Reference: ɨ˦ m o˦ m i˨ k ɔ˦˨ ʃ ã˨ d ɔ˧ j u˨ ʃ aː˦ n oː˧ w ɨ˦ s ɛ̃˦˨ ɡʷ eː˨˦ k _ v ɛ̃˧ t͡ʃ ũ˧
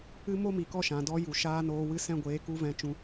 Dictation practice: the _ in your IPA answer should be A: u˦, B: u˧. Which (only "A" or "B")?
A